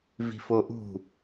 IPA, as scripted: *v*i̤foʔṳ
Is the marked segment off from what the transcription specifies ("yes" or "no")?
no